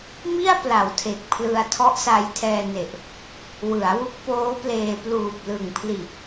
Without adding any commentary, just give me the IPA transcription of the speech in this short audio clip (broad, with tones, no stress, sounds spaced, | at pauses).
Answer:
m i˥˩ a̯ p l a˩˦ w tʰ e˨˩ k̚ pʰ l ɯ˧ a̯ tʰ ɔ˦˥ ʔ s a˧ j tʰ ɛː˧ n e˨˩ ʔ | w ɯ˩˦ a̯ w u˦˥ k̚ p oː˦˥ p l eː˧ p l uː˨˩ p̚ l ɯ˨˩ ŋ pʰ l iː˨˩ p̚